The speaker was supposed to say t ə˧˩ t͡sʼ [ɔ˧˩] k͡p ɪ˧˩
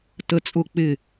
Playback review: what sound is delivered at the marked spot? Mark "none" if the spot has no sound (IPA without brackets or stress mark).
ʊ˧˩